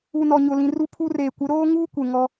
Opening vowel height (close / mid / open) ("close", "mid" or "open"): close